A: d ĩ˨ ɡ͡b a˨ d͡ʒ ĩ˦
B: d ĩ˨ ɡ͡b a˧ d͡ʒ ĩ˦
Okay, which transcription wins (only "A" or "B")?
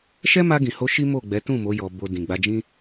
B